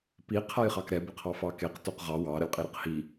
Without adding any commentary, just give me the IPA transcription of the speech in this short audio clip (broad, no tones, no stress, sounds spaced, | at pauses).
p i qʰ a j χ ɑ k ɾ ɛ b ə qʰ ɑ f ɑ k e q t o q ʁ ɑ w ɑ ɾ ə lʲ qʼ i ɾ ə q h i